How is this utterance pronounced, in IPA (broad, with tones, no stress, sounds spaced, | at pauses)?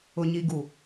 ʊ˨ ɲ i˨ ɡ u˨